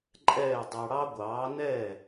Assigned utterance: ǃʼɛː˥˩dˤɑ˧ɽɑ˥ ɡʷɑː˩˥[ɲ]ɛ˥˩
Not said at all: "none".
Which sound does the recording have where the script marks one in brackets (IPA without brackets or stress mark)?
n